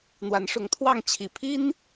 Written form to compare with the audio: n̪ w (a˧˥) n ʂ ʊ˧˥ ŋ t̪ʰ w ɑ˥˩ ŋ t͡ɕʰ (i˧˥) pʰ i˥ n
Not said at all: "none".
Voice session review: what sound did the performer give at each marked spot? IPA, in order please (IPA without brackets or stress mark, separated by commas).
a˧˥, i˨˩